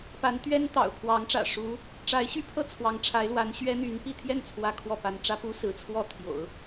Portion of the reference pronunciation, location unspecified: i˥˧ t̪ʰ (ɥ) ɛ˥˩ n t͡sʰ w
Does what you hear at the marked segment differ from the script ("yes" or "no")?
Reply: yes